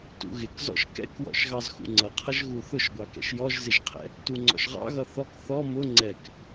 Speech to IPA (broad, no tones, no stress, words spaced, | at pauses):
tṵɣɪkzɔ̰ʃ kɛ̰kwɔ̰ʃɣɑz xṵŋ͡ǀʌqʰʌʒ ɣuθʊʃɡʷɑkɛ̰ʃ jɔʒzɪʒqʰɛ̰ | tuŋ͡ǀɔ̰ʃʁɑ̰ɣʌ θɔk θɔ mʊ ŋ͡ǀɛk